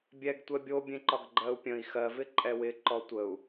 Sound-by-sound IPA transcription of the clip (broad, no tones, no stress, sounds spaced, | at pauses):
bʲ ɛ ɡ tʷ ɛ bʲ o bʲ ẽ ǃ ɒ ɡ ɡ͡ǃ ɜ u̯ pʲ ə̃ i̯ x ɜ v ɪ ǃʼ ɛ w ɪ ǃ ɔ tʷ ə u̯